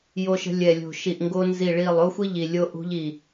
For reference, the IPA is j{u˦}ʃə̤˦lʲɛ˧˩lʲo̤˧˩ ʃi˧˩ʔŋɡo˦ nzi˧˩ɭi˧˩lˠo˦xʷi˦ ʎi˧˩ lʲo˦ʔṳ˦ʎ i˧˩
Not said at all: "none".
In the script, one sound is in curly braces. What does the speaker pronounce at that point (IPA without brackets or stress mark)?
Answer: o˦